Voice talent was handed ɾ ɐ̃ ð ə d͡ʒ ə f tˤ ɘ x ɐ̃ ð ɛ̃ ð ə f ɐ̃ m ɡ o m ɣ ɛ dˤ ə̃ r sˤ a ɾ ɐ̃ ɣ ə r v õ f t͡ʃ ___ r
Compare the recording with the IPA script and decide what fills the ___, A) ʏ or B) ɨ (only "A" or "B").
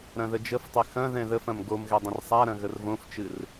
B